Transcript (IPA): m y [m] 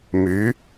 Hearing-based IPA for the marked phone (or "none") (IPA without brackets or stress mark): none